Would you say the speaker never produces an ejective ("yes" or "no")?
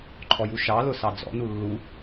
yes